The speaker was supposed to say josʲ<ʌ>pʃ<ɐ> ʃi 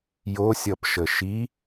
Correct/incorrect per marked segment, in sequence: correct, incorrect: ə

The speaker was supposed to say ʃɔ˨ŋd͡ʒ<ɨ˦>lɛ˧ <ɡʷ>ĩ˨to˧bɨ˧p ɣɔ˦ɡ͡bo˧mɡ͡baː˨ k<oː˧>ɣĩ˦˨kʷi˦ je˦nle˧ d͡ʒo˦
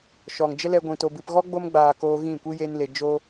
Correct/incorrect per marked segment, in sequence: incorrect: ə˦, correct, correct

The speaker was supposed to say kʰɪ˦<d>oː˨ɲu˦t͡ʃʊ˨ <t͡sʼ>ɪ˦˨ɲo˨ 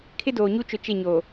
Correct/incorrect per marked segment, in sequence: correct, incorrect: t͡ʃ

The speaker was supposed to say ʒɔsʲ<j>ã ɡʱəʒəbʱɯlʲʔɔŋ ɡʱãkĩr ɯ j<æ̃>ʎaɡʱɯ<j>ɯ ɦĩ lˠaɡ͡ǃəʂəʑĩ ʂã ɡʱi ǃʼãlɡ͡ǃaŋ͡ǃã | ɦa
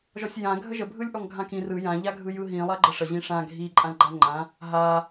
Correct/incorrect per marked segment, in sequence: correct, incorrect: ã, correct

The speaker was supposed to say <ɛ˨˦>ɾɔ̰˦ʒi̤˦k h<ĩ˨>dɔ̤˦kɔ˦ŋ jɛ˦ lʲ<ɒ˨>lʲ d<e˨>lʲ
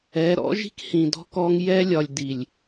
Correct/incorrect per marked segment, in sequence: correct, correct, correct, incorrect: i˨

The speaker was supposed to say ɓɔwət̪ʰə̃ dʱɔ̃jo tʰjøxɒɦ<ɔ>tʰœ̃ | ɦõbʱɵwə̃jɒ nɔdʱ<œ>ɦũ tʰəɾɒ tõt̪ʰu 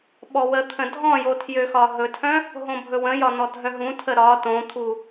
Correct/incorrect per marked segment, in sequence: incorrect: ɵ, correct

